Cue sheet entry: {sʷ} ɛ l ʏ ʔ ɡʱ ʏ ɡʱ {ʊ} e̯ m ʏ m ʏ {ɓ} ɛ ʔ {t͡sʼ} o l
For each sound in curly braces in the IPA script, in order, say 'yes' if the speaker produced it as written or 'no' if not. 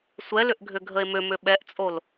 yes, no, yes, yes

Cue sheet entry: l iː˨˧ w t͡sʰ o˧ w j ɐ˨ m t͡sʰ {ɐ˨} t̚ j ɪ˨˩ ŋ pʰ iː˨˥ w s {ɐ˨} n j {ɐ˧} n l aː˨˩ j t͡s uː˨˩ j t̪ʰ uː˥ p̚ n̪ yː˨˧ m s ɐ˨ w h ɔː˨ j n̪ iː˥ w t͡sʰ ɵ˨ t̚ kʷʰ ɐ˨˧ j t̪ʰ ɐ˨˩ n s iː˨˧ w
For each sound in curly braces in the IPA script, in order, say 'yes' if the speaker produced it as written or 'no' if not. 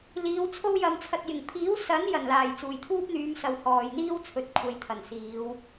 yes, no, no

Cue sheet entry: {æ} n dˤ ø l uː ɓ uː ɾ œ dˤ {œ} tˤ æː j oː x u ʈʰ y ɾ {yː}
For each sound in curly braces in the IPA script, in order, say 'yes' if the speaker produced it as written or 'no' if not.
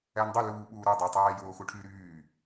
yes, no, yes

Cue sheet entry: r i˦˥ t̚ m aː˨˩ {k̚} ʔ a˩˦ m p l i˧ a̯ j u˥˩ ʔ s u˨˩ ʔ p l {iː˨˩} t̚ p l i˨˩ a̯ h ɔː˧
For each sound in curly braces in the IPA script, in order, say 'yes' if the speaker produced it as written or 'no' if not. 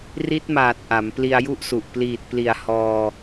no, yes

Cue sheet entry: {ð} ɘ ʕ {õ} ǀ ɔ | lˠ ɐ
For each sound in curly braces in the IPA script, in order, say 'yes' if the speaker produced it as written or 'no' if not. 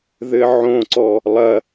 yes, yes

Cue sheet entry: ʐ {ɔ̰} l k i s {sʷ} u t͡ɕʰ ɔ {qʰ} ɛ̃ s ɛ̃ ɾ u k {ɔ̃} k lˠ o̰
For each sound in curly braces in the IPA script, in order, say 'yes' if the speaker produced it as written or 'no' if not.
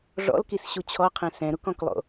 yes, no, yes, yes

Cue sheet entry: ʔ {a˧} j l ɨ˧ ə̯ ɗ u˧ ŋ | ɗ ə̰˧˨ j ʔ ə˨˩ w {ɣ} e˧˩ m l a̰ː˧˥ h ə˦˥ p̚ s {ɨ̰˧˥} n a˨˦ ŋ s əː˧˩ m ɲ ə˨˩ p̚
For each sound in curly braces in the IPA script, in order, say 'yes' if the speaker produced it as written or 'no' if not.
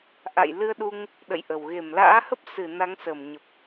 no, yes, no

